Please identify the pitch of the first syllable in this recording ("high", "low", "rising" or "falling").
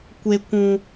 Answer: high